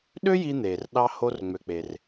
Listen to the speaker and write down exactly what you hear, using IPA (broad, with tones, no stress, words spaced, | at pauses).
ɗø˥ji˧n̪eː˩rɗɑ˧ ho˧rŋ͡mø˩k͡pe˩r